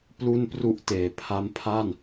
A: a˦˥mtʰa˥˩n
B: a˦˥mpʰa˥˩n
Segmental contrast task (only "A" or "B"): B